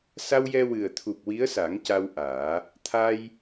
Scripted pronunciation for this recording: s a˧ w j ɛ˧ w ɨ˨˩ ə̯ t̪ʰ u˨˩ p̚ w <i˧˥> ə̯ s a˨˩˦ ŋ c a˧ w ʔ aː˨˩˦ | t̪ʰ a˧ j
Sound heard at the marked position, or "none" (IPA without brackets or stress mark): i˧˥